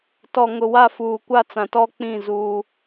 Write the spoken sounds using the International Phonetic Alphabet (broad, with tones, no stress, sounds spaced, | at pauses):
t ɔ˨ ŋ ʊ˨ w a˦˨ f uː˨ kʷ a˦˨ t͡s ã˨ t ɔ˦ k͡p ĩ˦˨ z uː˦